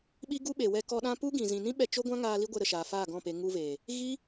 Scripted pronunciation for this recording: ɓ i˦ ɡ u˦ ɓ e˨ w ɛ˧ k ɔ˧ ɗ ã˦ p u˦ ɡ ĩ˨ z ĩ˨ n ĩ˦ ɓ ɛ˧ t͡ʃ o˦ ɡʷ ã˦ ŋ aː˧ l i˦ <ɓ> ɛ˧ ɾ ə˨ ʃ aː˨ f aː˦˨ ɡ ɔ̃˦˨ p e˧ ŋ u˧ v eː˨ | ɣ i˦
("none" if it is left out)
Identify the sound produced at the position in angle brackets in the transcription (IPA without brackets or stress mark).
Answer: ɡʷ